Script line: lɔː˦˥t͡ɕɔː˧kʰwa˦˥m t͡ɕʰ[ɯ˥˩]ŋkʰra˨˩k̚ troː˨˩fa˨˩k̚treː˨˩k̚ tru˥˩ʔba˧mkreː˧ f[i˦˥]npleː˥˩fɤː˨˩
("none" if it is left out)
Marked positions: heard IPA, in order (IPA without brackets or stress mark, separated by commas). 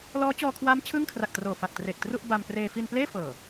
ɯ˥˩, i˧